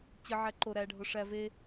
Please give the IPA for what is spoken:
t͡ɕ ə ʕ æ ǃ o ɾ æ ɖʱ o ʂ æ v e

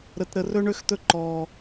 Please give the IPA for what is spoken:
ɾ ə˥ t ɾ ə˥ r ɵ˥ ɳ ø˥ x t̪ ɵ˥ ǃ ɔː˥

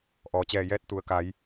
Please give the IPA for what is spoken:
ʔ ɔː˩ t͡ɕ ɛː˧˩ j ɛː˧˥ t̚ t̪ u˩ ə̯ k a˩˧ j

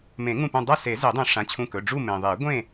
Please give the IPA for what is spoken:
m ẽ˨˩˦ ŋ ũ˧˩ p ũ˧˩ dˤ a˥˨ s e˨˩˦ z e˨˩˦ dˤ ũ˨˩˦ ʂ ã˩˧˩ t͡ɕʰ ũ˧˩ k ɵ˩˧˩ ɖ͡ʐ u˥˨ m ẽ˩ ðˤ e˨˩˦ ɡʷ ẽ˥˨

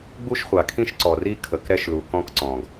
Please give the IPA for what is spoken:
ɡ͡b u˦ ʃ χʷ a˨ kʰ ĩ˦ ʃ ǀ ɔ˨ r i˦ kʰ ə˨ k ɾ ɛ˦ ʃ l u˨ k ɔ̃˦ k ǀ ɔ̃˨ ɡ

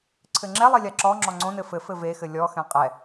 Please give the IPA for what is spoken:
ǀʰ ɘ ŋ͡ǁ ɛ lˠ i lʲ a ǁ ɔ ŋ͡ǁ ɔ ŋ͡ǀ õ n ɘ f ɘ f ɘ v e x ɘ lʲ ɔ x ɛ̃ qʼ ɛ

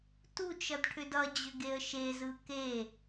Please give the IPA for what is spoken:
t u t͡ʃ ʌ d ʈʰ ʏ d ʌ d͡ʑ ʏ ɡ e ə̯ ʃ e z ɯ k e

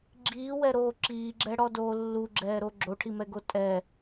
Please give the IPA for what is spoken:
ɡ͡ǁ iː w ɛ ɾ oː ǁ iː ɡ͡ǁ ɛ ɽ ɔ d oː lː u ɡ͡ǁ ɛː ɾ o ɡ͡ǁ o ʈʰ i m ɛ ɡ o tʼ ɛ

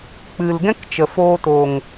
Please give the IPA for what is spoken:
k͡p ɨ˨ l ɡ ɛ̃˦ k t͡ʃ ə˨ f oː˧ t oː˨ ŋ

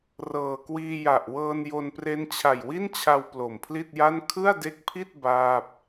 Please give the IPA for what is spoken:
r ɤː˨˩ k w iː˧ j a˨˩ ʔ w ɤː˧ n j o˧ n p r e˦˥ n t͡ɕʰ a˨˩ j w i˥˩ n t͡ɕʰ a˧ w p l o˨˩ m pʰ l i˥˩ t̚ j a˥˩ n kʰ ɯ˥˩ a̯ d e˦˥ k̚ pʰ i˥˩ t̚ b aː˥˩ p̚

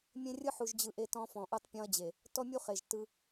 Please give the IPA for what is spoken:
mʲ ẽ˦ rʲ ɯ˦ ħ u˨ ʒ d͡ʑ ɯ˨ ʔ e˦ t ɔ̃˦ f ɔ̃˨ ʔ u˦ tˤ pʲ ɔ̃˦ ɐ̯ d͡ʑ e˨ | t ɔ˦ mʲ u˦ χ e˨ ʒ t ɯ˦

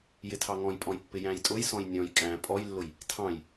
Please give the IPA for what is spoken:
j ɪ tʰ ɑ ŋ ɔ̃ j pʼ ɔ̃ j pː ɪ j æ̃ j tʼ ʊ j s ɔ̃ j nʲ ɔ̃ j kʼ æ̃ pʼ ɔ j lː ʊ j | tʰ ɑ̃ j

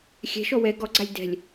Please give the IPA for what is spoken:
xʲ ɛ̤ ʃ ɔ w ɛ ɡ ɔ ɡ͡ǀ a lʲ d ɛ̤ lʲ

